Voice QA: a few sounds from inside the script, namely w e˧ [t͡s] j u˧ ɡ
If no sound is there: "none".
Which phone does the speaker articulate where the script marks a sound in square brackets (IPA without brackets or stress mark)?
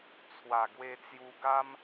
t͡s